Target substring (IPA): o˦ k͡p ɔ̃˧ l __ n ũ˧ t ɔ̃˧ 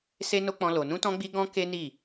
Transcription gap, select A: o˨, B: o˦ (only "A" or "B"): A